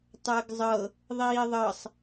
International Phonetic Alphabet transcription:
tˤ əː ɡ zˤ ɤ | ðˤ iː ðˤ ɤ sˤ

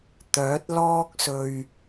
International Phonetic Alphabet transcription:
t̪ œː˨˥ t̚ l ɔː˥ k̚ s ɵ˧ ɥ

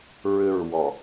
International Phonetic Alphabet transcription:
ɹ ʏ ɹ w ɔ

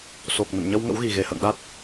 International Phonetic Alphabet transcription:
s o˨˩ k̚ n ə̰˧˨ n ɲ ə˧ w ŋ ə̰˧˥ w ɣ i˨˩ ɣ e˨˩ h ə̰ː˧˨ ŋ ɗ a˦˥ t̚

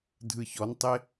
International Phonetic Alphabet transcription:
dʱ ɯ ç ɔ n tˤ e

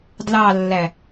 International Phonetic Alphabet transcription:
d l ɑ lː æ

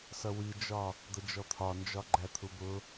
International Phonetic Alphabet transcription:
s ʌ w i d͡ʒ ɒ | d̪ ə d͡ʒ ɔ t̪ʰ ɒ n d͡ʒ ɒ ɡ͡ǃ æ t̪ʰ u b ʊ

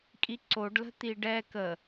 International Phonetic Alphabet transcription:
kʼ i ǀ o ɖ l ə̤ t̪ i ɖ ɛ k ə

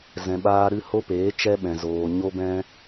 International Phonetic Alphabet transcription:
z ɛ̃˨ ɓ aː˧ ɾ ɨ˧ h o˦ p eː˨˦ t͡ʃ ɛ˧ ɓ ɛ̃˨ z oː˨ ɲ o˦ b ɛ̃˦

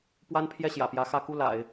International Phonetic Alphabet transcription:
p w a˥ n pʰ j ɛ˥˩ ɕ j ä̰˨˩ p j ä˧˥ x ä˧˥ k u˥˩ l a̰˨˩˦ ɪ̯

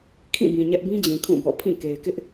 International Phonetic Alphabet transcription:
kʰ ĩ˦˨ b ĩ˨ ɲ ɛ˦ ʔ b ĩ˦ d͡ʑ ĩ˨ kʰ ũ˦˨ b ɔ̰˦˨ pʰ ĩ˦˨ k e˨ ɪ̯ k ɪ˦ ʔ

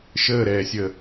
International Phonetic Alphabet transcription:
ʃ əː ɾ ɛː sʲ əː

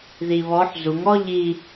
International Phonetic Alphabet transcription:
ð i β ɔ ħ z u ŋ ɔ ʎ i

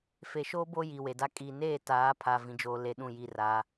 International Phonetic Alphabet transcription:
f e˨ ʃ oː˦ b o˦ j i˨ w e˨ d a˦ kʼ i˨ n eː˦˨ t aː˨˦ pʰ a˨ v ĩ˨ d͡ʒ oː˨ l e˦ ɗ ũ˦˨ j i˦˨ r a˨˦

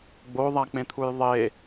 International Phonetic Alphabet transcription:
ɡ͡b o ðˤ a k͡p ẽ t̪ʰ u j ðˤ e

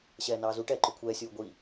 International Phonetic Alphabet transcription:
ɕ ɛː n ɑː z u ʈ ɛː ǃ ʏ kʷʰ ɛː sʲ uː ɡʷ i

